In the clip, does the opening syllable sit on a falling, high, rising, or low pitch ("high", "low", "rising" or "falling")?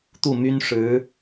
falling